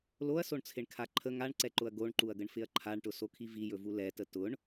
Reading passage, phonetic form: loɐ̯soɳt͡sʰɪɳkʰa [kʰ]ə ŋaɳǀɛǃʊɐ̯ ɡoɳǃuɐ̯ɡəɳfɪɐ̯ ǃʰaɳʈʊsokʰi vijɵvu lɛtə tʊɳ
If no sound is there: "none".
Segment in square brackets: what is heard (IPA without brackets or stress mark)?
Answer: ǃʰ